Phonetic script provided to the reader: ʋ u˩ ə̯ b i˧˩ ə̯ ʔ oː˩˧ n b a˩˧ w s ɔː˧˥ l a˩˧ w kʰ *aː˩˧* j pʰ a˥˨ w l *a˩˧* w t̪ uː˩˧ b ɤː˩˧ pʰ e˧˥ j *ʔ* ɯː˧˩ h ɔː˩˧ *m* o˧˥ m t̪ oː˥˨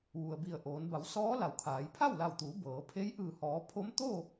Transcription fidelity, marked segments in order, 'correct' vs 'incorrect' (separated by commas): correct, incorrect, correct, incorrect